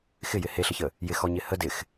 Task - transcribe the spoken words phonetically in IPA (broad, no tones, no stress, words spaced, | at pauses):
xɪjɪ heɬəçə | jɪxɔɲɪ hə dɪx